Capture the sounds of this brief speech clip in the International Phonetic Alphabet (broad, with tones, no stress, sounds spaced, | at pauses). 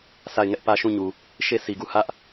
s a˦˨ ɪ̯ ŋ ɛ˦ ʔ p ä˦ ʃ ũ˦˨ ɲ u˨ | ʃ e˦˨ s i˨ ɡ u˦˨ h ä˦ ʔ